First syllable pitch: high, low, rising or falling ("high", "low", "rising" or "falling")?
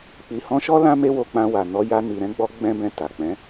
low